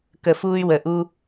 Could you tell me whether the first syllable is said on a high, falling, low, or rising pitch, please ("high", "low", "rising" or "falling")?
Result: low